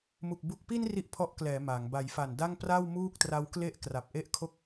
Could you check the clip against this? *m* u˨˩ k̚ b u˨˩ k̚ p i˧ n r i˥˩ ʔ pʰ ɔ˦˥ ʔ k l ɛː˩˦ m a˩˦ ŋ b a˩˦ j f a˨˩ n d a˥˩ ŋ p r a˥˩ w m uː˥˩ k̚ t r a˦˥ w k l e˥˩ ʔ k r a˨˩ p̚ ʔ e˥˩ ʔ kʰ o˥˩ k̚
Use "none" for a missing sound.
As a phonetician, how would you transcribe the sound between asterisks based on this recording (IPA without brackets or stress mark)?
m